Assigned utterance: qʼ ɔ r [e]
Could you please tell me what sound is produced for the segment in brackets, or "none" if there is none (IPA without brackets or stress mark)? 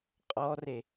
e